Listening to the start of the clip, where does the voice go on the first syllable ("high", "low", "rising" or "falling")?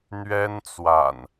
high